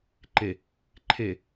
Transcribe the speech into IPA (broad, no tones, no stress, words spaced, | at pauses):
ǃe | ǃʰe